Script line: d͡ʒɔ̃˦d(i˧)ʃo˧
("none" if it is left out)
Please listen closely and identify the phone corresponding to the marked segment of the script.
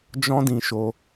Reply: ĩ˧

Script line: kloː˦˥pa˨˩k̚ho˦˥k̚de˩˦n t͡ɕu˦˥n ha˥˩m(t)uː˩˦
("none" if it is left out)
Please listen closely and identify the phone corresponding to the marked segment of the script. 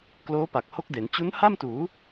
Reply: t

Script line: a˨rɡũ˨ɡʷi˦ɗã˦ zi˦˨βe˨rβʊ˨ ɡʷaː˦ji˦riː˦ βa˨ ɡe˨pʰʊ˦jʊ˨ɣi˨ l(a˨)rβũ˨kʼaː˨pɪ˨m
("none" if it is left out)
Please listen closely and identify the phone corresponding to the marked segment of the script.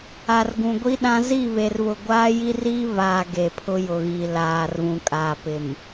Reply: aː˨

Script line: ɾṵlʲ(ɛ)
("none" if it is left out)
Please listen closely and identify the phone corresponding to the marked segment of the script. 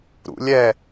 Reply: ɛ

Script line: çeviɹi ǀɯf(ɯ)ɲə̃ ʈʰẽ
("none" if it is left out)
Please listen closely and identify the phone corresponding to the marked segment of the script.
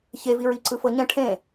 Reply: ɤ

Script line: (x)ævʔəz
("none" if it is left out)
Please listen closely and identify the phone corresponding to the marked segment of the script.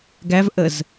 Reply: ɡ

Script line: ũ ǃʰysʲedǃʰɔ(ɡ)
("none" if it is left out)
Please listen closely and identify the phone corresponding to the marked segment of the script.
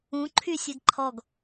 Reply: ɡ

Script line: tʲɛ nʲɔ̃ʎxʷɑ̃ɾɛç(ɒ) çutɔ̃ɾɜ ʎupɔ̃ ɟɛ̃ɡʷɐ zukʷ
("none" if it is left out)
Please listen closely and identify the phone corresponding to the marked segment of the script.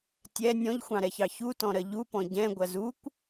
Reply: ɑ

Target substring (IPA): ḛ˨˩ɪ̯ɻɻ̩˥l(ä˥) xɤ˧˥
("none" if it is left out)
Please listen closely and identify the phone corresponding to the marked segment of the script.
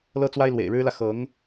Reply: ä˨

